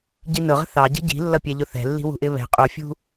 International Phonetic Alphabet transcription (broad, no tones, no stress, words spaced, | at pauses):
ɟinʊʁə̤ θɑɟə̤ ɟi̤lːʌpʲɛʎʊ θɛ̤lːi̤ wṳʔɪβɛ̤ qʼufʲṳ